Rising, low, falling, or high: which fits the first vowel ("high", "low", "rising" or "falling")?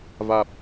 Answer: low